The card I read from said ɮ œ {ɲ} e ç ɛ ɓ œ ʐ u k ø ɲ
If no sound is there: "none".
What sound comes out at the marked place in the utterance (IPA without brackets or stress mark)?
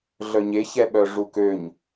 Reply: ɲ